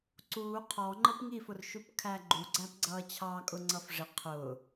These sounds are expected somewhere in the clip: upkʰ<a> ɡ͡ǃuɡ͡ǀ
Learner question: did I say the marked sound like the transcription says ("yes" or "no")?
no